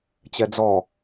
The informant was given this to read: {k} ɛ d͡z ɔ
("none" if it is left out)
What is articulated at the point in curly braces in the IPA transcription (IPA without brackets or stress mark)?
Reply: t͡ɕ